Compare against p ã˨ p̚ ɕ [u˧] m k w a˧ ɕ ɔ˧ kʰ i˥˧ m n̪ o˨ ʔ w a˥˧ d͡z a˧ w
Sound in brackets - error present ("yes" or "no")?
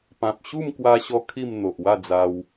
yes